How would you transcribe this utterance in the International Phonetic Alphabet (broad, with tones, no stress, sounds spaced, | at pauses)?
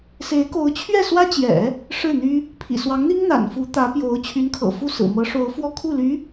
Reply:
s e˧˥ ɪ̯ k o˧˥ ʊ̯ t͡ɕʰ ɥ ɛ˥˩ s w ä˥ t͡ɕ j ɛ̰˨˩˦ | ʂ ɻ̩˥˩ n̪ y˥ | pʰ ḭ˨˩ s w ɑ˧˥ ŋ n̪ i˥ ŋ n̪ a̰˨˩ n f u˧˥ t̪ ä˧˥ p j o˧˥ ʊ̯ t͡ɕʰ y˧˥ n kʰ ɤ̰˨˩ f u˥˩ s ɹ̩˨˩ m ɤ˧˥ ʂ o˧˥ ʊ̯ f w ɔ˥˧ kʰ u˥˩ l y˧˥